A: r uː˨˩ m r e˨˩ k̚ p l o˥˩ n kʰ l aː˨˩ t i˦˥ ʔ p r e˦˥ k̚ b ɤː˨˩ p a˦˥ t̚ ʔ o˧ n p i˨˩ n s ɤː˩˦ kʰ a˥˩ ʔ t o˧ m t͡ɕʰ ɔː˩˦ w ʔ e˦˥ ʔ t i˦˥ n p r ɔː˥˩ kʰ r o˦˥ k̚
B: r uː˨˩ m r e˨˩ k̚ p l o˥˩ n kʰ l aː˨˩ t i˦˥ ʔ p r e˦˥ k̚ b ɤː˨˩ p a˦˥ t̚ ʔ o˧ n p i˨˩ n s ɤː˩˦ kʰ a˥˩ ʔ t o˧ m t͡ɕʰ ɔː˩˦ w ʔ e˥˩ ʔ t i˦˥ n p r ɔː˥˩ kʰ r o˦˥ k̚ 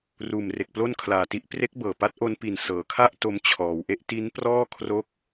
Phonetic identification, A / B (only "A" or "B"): A